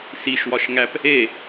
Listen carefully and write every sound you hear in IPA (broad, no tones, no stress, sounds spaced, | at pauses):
s i ʃ w ɒ ʃ ŋ æ p | e